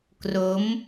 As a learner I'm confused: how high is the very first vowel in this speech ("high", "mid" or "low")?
mid